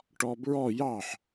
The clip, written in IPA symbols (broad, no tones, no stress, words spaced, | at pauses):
ʈɔbɹɔ jɑħ